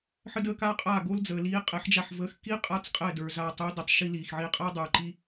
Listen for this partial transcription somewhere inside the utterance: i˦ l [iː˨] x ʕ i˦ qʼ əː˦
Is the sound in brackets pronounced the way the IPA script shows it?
yes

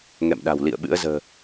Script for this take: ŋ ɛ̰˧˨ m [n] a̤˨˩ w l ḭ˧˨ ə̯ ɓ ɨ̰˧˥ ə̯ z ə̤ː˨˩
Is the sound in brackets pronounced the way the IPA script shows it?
no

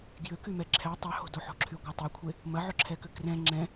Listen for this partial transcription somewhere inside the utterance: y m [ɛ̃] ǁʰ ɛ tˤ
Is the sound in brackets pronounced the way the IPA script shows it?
no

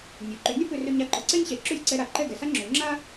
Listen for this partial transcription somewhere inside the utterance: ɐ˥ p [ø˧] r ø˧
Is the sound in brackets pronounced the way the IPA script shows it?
yes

